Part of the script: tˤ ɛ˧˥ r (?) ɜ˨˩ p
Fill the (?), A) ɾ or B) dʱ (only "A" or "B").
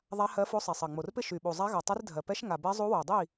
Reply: B